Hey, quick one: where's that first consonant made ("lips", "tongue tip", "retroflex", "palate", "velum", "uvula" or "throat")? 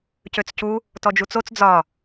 palate